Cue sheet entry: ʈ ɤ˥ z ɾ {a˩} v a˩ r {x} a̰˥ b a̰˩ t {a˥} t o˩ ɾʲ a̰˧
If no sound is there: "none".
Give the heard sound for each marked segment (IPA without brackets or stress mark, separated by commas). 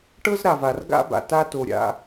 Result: a˩, ɡ, a˥